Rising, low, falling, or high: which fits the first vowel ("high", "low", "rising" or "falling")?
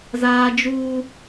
high